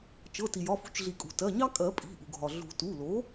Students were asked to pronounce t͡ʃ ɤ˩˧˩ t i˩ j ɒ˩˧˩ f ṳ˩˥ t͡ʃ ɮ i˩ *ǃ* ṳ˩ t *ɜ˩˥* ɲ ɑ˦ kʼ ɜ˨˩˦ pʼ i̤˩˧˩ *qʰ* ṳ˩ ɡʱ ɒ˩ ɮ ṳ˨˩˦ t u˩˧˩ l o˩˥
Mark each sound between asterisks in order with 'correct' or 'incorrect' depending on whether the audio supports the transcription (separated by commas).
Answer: incorrect, incorrect, incorrect